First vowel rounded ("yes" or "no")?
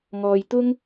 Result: yes